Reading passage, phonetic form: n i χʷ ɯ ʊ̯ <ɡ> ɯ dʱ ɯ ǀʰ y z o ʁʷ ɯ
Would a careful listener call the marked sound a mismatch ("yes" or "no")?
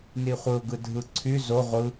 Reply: no